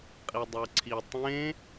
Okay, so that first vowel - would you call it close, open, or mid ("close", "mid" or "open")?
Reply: close